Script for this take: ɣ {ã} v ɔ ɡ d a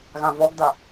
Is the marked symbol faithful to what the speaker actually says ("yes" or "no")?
yes